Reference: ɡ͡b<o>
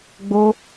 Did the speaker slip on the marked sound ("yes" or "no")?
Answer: no